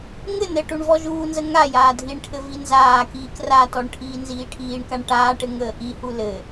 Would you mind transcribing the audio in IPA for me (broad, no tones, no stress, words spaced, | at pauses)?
ŋɘ nɘʈuɳ vɔʒuːnzə ŋa jaːdʱiɳʈʰɘ vinzaːkiːk ratɔɳ ʈʰiːnziːʈʰiːɳkaɳ ʈaːʈɘ ŋəːʔihu lɘ